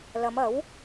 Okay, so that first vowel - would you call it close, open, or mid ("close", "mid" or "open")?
open